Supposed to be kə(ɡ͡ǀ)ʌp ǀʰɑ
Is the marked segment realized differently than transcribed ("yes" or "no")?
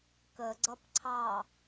no